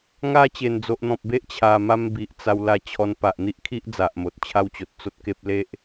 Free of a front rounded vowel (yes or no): yes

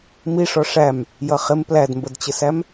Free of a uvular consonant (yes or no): no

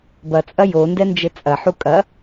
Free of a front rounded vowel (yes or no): yes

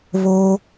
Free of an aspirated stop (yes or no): yes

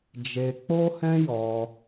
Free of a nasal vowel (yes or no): no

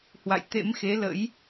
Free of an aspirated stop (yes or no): yes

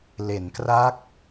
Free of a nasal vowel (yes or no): yes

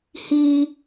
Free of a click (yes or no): yes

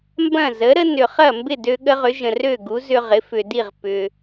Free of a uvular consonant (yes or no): no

